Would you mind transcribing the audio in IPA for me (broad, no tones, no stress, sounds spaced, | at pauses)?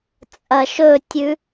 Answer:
t͡sʼ ɐ ʃ ɵ tʲ ʉ